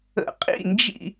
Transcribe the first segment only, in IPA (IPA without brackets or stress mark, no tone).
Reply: ə̰